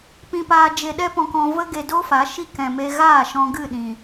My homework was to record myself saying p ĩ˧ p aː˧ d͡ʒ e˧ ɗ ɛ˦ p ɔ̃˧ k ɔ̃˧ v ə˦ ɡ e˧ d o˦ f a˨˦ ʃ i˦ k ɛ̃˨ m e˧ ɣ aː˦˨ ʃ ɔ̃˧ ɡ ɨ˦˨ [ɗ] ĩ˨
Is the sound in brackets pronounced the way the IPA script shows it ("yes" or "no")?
yes